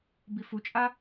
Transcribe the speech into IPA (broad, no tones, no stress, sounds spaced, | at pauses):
b i f u t͡ʃʼ a